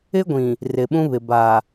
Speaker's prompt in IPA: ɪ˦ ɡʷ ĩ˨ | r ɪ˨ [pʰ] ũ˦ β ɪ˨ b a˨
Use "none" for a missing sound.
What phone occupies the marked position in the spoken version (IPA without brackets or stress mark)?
ɓ